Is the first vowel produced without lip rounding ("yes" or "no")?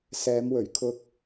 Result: yes